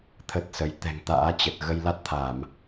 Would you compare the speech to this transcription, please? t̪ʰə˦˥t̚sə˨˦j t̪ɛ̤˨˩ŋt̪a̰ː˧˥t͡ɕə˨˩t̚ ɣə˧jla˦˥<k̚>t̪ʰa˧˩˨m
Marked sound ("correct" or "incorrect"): incorrect